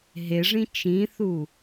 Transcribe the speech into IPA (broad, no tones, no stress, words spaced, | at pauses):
ɦeʐĩ t͡ʃĩθu